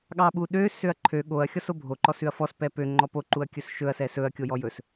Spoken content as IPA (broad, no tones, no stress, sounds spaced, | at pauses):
ɠ ɑ ɓ u ɗ ø s ø ɐ̯ ǃʰ ø ɠ o ɐ̯ xʲ ɔ s o bʱ o ǃ ɔ s ʉ ɐ̯ f ɔ s p ɛ p ø ŋ͡ǃ ɔ p o ǃ u ɐ̯ kʲ ɵ s ʃ ɵ ɐ̯ s ɛ s ɵ ɐ̯ kʲ o j ɔ j ɵ s